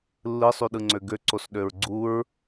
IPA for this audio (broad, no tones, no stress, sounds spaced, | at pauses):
lː ɯ sˤ y ɗ ɯ ŋ͡ǀ ø ɡ ø ǀ o s ɗ ø ɹ ɡ͡ǀ u ɹ